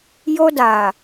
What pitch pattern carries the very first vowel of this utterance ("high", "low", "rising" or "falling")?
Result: high